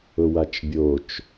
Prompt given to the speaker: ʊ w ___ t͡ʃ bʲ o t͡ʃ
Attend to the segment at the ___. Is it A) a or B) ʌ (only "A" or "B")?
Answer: A